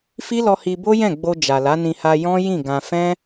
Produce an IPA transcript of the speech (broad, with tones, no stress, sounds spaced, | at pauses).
f i˦ l ɔ˧ h i˧ b o˦ j ɛ̃˦˨ ɡ͡b o˧ d͡ʒ a˨ l a˨˦ n ĩ˧ h a˧ j ɔ̃˦ j ĩ˦˨ ɡ ã˧ f ɛ̃˦